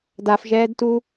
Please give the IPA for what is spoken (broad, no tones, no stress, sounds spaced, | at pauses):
d a f ʒ ɛː d t u